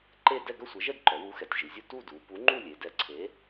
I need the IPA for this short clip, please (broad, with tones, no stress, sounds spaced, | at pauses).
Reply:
ǃ e˥˧ d ɛ˥˧ ɡ œ˥˧ sʷ ɛ˨˥ ʒ ɛ˥˧ d ǃ œ˩˧ w u˨˥ x ɛ˩˧ tʲ ʒ i˩˧ zʲ u˥˧ t u˥˧ d u˩˧ p u˨˥ ŋ͡ǃ u˥˧ lʲ e˩˧ d ɛ˨˥ ǀʰ e˨˥